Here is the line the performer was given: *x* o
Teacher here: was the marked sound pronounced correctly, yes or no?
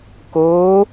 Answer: no